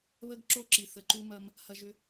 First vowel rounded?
no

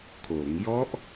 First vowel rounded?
yes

